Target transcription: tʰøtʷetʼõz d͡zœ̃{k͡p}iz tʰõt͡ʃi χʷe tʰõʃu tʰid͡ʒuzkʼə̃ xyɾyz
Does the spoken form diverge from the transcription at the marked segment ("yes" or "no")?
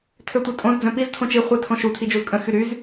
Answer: yes